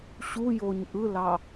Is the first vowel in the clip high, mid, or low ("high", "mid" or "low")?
high